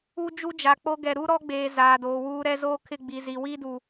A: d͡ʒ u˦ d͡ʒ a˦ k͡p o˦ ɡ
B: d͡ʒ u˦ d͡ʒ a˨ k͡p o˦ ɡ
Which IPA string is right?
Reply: B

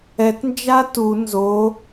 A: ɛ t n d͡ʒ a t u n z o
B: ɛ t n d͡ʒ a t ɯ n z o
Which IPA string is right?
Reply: A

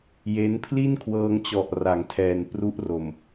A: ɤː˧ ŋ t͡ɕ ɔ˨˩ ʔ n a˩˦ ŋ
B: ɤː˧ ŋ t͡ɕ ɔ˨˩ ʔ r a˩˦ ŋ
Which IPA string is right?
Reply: B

